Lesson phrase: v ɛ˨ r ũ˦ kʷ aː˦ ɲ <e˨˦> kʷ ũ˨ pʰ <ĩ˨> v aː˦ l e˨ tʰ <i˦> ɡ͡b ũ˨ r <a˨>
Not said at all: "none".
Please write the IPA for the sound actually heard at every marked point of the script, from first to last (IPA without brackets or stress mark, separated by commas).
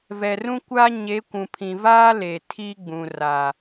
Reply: e˨˦, ĩ˨, i˦, a˨